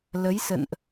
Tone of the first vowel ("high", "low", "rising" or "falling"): rising